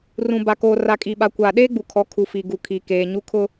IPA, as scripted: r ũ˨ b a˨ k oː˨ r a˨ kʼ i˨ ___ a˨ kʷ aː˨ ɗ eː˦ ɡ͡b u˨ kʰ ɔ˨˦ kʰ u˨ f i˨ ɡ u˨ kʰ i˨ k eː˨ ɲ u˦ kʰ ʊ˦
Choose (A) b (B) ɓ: B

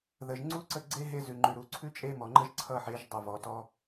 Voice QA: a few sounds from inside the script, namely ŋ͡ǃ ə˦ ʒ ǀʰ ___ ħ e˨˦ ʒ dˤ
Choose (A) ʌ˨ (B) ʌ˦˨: B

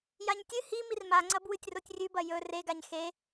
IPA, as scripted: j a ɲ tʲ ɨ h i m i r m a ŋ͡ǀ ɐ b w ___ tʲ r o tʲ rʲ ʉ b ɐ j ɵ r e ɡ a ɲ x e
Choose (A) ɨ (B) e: A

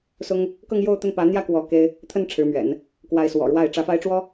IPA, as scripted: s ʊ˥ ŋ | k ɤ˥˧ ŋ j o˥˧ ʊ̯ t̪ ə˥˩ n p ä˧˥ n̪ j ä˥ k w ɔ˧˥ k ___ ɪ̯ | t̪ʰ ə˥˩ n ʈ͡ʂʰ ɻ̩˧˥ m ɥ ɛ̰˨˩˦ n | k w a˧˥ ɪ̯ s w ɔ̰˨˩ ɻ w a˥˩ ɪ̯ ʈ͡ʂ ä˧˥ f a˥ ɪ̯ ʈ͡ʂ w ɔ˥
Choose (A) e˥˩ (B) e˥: B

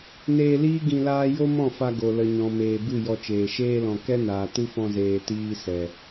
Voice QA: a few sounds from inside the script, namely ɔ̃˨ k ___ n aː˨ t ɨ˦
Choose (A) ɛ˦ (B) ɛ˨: A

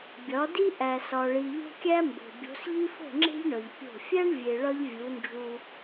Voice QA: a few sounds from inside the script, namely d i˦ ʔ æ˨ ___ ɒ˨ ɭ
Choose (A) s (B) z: A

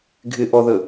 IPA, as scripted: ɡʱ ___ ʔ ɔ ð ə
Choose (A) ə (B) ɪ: B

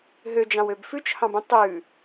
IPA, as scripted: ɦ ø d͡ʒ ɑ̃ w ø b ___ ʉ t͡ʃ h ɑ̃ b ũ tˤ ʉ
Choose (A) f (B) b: A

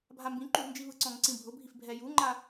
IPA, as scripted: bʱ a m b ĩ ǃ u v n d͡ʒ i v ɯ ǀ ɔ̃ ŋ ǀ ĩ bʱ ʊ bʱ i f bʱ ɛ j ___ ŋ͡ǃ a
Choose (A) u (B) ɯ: A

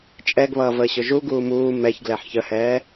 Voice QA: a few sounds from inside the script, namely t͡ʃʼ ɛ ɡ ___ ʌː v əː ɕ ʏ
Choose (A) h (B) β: B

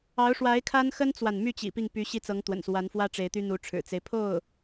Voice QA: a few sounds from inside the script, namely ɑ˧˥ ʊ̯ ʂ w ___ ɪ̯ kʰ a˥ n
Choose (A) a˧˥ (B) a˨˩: A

